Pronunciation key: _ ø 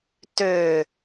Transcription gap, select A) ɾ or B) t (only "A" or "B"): B